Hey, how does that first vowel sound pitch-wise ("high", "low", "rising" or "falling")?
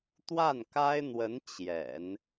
falling